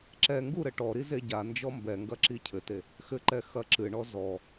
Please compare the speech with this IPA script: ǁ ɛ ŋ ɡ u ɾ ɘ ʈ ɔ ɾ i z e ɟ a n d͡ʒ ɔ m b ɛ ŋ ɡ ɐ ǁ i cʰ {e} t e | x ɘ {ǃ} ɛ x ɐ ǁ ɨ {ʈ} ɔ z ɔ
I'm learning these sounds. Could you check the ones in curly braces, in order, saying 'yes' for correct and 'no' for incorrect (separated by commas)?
no, yes, no